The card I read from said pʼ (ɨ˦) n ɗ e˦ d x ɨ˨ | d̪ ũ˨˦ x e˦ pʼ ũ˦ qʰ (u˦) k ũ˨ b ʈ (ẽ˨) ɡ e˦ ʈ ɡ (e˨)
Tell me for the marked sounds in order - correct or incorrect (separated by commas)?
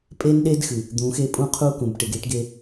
incorrect, correct, incorrect, incorrect